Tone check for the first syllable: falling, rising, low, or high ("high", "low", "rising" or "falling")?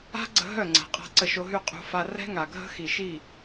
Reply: high